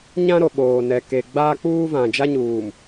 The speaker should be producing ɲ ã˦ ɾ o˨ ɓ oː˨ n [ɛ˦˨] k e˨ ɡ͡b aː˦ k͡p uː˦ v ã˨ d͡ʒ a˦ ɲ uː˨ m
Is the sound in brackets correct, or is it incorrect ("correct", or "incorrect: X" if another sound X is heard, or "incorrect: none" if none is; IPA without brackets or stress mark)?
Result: incorrect: ɛ˨